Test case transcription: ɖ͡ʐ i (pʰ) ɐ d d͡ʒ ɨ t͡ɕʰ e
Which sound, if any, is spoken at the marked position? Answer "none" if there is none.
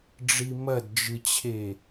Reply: m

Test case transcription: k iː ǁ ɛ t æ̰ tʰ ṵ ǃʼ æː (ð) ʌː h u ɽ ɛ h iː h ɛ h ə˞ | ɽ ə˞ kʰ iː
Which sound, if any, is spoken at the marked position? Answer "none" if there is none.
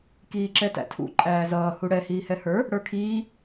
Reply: z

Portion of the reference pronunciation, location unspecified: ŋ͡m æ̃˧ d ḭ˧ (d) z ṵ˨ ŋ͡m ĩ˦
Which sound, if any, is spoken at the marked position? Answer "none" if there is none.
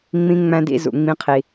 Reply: none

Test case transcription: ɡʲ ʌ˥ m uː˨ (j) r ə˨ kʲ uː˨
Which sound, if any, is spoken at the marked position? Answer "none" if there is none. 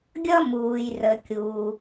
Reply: j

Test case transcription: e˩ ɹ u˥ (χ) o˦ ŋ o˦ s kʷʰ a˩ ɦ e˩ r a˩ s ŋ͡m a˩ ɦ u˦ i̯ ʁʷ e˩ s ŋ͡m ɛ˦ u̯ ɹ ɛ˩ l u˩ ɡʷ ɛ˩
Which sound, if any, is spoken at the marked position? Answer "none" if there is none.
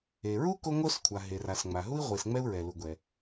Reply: k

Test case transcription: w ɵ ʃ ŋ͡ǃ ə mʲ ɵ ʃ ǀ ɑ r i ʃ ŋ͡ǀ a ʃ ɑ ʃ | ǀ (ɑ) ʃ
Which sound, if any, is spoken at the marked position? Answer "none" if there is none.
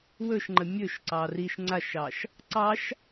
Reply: ɑ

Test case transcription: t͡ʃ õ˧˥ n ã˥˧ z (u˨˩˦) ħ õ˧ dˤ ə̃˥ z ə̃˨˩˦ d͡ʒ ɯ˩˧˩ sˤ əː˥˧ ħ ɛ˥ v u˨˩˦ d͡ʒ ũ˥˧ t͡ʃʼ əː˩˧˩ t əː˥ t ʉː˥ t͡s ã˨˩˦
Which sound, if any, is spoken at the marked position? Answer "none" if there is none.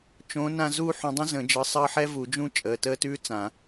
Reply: u˥˧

